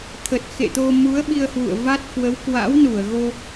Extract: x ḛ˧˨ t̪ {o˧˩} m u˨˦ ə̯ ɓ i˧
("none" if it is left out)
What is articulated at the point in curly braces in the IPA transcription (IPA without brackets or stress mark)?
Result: o˧